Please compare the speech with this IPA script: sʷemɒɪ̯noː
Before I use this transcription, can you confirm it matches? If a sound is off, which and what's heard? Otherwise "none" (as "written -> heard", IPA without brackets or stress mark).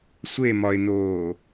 none